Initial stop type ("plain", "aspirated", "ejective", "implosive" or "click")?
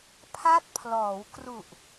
aspirated